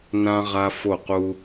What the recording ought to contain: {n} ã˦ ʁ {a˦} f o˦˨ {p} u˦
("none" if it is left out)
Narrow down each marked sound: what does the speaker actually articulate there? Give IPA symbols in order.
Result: n, a˦, q

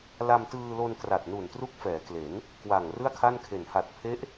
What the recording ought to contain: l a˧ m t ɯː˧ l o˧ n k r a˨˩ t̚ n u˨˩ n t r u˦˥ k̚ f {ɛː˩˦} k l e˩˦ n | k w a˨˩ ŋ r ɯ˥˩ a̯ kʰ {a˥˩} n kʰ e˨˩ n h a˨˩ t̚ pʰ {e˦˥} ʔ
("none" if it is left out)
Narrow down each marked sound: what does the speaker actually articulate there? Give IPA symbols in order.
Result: ɛː˩˦, a˥˩, e˦˥

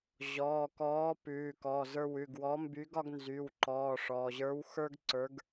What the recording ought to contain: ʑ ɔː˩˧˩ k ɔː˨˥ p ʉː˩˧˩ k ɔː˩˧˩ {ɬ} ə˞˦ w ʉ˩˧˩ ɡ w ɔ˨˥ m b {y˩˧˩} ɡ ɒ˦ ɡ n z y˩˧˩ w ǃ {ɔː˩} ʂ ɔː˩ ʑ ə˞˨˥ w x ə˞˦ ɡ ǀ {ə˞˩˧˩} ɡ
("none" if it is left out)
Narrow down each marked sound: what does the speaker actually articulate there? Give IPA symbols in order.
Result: z, y˨˥, ɔː˩˧˩, ə˞˨˥

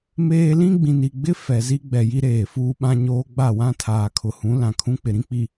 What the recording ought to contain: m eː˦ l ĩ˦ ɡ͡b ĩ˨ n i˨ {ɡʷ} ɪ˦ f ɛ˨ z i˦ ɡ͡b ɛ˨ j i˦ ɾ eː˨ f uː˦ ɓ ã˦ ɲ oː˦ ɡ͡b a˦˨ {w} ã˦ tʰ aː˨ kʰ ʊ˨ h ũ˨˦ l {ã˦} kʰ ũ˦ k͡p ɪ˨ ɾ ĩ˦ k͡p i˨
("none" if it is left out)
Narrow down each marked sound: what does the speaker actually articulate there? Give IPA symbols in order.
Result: ɡ͡b, w, ã˨

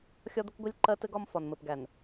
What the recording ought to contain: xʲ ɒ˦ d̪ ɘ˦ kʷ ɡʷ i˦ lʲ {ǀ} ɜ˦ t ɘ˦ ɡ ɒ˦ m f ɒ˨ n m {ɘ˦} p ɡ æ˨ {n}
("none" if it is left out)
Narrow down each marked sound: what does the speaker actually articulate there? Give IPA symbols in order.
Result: ǃ, ɘ˨, n

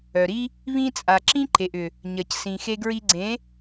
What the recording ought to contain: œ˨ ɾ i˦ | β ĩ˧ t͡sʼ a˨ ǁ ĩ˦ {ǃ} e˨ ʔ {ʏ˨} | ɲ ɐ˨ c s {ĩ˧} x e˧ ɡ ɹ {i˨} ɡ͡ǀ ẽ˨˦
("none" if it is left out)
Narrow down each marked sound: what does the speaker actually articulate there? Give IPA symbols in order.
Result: ǃ, ʏ˨, ĩ˨, i˧

